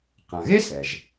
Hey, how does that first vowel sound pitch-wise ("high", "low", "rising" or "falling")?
low